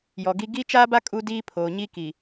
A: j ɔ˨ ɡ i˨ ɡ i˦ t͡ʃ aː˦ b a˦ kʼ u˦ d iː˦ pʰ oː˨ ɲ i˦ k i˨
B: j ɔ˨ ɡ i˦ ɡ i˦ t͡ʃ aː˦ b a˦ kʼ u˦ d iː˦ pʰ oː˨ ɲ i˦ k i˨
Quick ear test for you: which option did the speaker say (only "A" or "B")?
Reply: B